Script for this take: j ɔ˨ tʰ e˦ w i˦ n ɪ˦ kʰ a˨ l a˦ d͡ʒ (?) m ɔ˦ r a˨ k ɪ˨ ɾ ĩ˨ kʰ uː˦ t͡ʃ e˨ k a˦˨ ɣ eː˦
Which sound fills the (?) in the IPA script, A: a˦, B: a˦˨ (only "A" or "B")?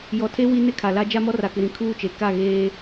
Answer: A